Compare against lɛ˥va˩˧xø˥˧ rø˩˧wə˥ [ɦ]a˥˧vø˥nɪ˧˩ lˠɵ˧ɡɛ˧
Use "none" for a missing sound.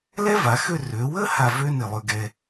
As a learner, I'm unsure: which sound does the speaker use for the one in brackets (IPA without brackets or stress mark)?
h